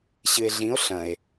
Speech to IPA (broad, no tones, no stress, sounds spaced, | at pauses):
ɕ ɨ e̯ ɮ ĩ o̯ ɬ ɐ̃ e̯